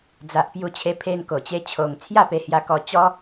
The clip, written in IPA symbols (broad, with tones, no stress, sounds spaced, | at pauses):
d͡z a˨ ʔ p j u˧ t͡ɕʰ e˧ pʰ e˧ n k o˨˩ t͡ɕ e˦ t͡ɕʰ o˧ ŋ t͡sʰ j a˥˧ p e˧ h j a˧ k ɔ˧ t͡ɕ ɔ˦